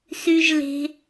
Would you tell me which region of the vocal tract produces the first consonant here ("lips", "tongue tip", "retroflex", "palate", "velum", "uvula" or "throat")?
tongue tip